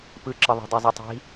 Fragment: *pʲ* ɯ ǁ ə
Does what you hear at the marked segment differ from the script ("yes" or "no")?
yes